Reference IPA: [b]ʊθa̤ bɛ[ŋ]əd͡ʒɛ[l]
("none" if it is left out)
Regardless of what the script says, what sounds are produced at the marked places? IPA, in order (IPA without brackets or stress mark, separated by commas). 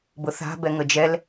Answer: b, ŋ, l